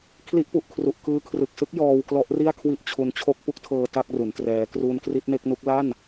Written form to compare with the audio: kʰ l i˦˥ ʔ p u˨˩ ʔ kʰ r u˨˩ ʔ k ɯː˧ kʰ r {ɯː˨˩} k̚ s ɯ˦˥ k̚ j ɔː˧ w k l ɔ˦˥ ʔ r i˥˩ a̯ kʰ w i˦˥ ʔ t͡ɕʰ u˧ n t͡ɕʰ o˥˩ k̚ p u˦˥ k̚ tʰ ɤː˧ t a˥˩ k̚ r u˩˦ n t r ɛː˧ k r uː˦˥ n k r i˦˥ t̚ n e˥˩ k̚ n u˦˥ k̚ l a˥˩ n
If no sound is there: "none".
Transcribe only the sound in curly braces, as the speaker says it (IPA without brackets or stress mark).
ɯ˨˩